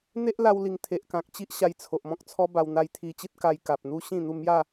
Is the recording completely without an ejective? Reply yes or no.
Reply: yes